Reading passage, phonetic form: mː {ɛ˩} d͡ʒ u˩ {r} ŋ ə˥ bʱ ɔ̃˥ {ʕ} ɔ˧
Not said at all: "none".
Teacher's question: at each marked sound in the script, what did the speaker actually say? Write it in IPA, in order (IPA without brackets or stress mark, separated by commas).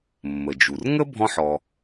ə˩, r, ħ